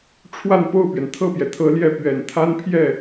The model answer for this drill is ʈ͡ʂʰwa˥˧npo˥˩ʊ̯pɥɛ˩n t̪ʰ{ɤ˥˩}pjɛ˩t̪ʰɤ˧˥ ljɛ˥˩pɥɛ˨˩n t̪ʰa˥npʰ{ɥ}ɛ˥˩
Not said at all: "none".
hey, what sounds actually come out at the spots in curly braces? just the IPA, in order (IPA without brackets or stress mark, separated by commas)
ɤ˥˩, j